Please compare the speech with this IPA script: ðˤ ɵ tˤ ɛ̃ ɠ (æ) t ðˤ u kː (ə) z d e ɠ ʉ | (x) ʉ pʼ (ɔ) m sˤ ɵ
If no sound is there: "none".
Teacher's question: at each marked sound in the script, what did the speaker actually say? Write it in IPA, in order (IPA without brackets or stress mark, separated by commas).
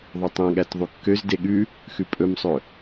æ, ø, x, ɵ